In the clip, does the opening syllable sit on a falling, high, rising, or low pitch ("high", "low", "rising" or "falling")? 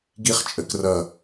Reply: falling